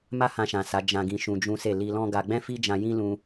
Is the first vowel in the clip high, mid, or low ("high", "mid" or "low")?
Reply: low